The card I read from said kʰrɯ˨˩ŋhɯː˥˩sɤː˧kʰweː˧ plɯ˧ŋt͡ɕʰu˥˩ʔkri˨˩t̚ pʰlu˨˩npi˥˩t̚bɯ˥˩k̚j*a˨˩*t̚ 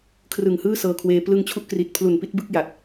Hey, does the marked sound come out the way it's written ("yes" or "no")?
yes